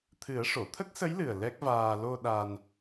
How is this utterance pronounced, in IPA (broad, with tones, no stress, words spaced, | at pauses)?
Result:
t̪ʰɨ˨˩˦ə̯ʂo˨˩˨ t̪ʰə˦˥k̚sə˧˥jlɨ˨˩ə̯ lɛ˦˥k̚vaː˧ lo˧ ɗa˧n